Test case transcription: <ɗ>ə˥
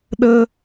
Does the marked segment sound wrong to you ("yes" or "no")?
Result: no